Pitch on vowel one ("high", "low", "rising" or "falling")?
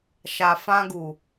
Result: low